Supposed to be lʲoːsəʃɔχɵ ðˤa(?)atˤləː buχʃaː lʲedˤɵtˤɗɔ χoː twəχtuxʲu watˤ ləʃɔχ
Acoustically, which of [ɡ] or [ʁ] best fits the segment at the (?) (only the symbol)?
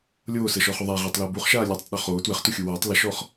ʁ